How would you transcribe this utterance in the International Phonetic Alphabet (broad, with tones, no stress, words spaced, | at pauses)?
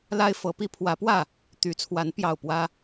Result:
la˦ɪ̯fɤ˨˦pi˦ pʰwä˨˦pwä˥˨ | t̪y˨˦t͡sʰwa˨˦n pjɑ˥˨ʊ̯pwä˦